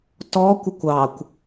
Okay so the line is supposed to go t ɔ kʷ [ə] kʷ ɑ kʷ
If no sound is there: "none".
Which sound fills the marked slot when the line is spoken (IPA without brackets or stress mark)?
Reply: ə